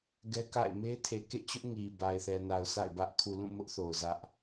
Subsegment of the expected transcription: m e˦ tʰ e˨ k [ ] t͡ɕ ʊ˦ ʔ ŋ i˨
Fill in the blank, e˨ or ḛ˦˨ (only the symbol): ḛ˦˨